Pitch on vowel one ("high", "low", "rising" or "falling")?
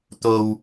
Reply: low